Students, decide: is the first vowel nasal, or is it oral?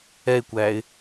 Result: oral